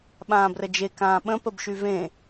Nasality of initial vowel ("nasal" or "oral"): nasal